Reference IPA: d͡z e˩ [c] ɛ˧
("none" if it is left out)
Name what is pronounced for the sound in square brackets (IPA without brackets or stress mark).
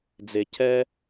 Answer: c